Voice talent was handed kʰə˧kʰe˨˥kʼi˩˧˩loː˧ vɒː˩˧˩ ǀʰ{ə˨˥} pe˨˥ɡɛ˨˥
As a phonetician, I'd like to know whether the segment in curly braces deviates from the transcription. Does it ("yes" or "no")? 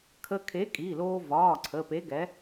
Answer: yes